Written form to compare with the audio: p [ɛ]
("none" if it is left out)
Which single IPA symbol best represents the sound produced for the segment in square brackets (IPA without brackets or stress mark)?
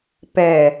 ɛ